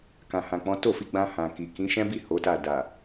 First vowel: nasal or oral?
nasal